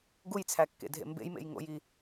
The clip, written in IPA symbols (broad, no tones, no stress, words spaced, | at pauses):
ɡujt͡sʰækːḛdʱḛ mbḛjmḛjŋo̰ji